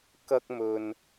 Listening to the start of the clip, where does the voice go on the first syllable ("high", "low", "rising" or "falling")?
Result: high